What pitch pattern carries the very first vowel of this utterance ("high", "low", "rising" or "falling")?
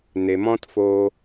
low